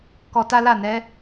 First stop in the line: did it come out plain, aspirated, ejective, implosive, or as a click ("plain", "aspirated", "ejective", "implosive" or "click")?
plain